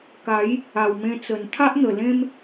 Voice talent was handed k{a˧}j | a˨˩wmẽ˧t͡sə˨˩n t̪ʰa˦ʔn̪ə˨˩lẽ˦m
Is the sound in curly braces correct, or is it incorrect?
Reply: incorrect